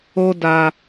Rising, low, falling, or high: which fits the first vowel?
high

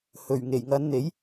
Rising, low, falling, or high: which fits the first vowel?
low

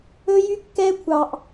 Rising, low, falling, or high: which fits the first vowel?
high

